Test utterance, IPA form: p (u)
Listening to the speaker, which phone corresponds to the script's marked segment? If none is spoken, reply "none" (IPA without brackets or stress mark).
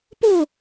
o